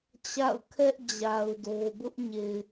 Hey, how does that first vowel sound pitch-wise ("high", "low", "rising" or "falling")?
falling